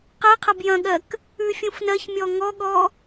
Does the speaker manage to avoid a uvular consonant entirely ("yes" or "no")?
no